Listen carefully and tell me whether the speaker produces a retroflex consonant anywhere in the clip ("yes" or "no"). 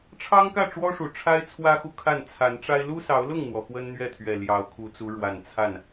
yes